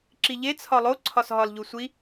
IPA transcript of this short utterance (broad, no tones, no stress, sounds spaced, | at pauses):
ǁ i ʎ e t͡sʰ ɒ lˠ o ǀʰ ɒ s ɦ ɒ l ʎ u sʷ i